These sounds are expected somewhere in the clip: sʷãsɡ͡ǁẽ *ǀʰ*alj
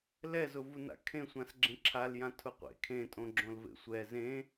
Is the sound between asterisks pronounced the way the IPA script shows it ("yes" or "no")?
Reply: no